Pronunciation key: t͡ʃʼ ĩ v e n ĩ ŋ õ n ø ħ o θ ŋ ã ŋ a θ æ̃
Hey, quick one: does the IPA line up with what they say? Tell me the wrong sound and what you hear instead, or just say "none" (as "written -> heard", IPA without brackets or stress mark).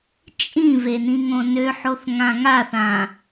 æ̃ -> ã